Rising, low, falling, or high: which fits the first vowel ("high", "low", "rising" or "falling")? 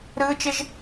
high